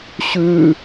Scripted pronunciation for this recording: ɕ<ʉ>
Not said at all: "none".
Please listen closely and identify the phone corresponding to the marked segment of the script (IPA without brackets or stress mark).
ʉ